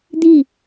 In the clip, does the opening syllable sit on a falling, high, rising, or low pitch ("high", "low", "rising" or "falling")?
falling